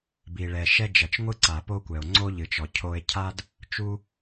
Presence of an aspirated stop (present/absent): present